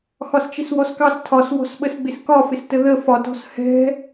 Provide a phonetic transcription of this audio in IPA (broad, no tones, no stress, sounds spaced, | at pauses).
x ɒ s t͡ʃ ɪ s w ɔ s k ɑ s tʰ ɒ s w ɔ̤ s ɓ ə s ɡ͡b ɪ s k ɒ f ɪ s t ə ð ə f ɒ t ɔ̤ s h ɛ̤